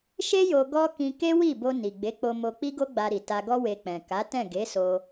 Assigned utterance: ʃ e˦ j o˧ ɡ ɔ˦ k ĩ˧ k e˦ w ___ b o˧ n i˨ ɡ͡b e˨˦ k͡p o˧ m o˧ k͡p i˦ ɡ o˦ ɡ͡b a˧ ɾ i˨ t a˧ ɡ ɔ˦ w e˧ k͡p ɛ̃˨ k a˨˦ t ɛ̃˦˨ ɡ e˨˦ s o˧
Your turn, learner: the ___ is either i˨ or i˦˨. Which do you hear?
i˦˨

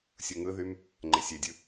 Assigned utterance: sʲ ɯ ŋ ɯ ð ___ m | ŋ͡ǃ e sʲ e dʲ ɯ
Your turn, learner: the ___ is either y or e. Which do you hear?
y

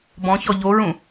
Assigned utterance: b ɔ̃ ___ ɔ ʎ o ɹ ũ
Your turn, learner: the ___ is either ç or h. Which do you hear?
ç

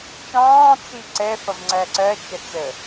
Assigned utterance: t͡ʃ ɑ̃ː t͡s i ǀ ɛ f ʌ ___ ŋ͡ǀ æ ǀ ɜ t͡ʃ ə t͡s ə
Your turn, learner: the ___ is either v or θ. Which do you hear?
v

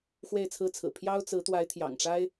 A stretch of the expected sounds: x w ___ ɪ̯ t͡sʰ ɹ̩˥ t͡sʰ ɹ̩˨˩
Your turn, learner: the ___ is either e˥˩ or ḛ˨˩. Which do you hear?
e˥˩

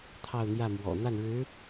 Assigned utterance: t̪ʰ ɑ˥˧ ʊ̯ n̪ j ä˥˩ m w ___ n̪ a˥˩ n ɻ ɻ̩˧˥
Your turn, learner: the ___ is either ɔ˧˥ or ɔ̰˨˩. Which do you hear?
ɔ̰˨˩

